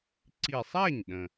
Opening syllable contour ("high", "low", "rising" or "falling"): low